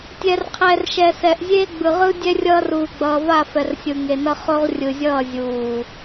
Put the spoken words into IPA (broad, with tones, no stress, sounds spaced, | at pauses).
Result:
tʲ ɛ˨ r qʰ ɛ˨ r ʃ ɛ˨ s ɛ˨ ʔ zʲ e˦ ɡ͡b ɯ˨ ʁ ɯ˦ dʲ ɛ˦ rʲ ʌː˦ r uː˨ ɡ͡b ʌː˨ v a˦˨ f ɛ˨ r sʲ ɯ˨ ŋ e˨ n ʌ˦ χ o˦ ʁ rʲ ɯ˨ zʲ ʌː˦˨ zʲ uː˨